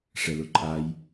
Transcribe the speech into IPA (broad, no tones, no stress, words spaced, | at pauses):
ʂɛlʊǃʼaj